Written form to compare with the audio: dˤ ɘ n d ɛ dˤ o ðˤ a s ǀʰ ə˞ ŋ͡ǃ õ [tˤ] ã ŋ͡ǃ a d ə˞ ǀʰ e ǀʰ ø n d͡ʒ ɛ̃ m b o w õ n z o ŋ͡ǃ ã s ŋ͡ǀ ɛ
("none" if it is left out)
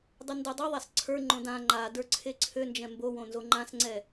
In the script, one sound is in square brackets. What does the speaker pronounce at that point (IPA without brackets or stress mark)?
d